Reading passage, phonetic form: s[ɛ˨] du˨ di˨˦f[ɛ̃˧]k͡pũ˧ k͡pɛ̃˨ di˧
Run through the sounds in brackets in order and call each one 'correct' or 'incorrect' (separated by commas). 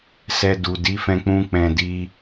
correct, correct